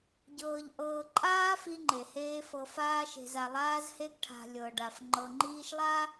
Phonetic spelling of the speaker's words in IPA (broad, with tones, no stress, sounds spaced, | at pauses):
ɟ ɤː˨ ʎ ʔ ɤː˨ ǃʼ aː˦ f i˦ ŋ͡ǃ e˨ h eː˦ f ɤ˨ f aː˦ ʃ e̤˨ z a˨ lˠ aː˦ z h e˦ ɡ ʈʰ a̤˨ lʲ ɤ˨ ɖ a˨ f ŋ͡ǃ ɤ˨ ŋ͡ǃ iː˦ ʃ lˠ a˦